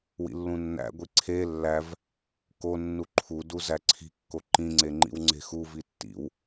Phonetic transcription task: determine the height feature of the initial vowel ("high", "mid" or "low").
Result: high